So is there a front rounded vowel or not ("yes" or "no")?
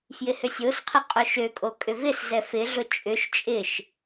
yes